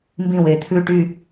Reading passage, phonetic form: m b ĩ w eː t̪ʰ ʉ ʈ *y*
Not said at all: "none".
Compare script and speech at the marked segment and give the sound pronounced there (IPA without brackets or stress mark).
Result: y